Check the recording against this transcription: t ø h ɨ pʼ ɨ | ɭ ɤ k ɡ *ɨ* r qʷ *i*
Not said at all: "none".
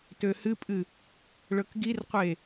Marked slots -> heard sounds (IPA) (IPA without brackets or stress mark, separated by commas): i, e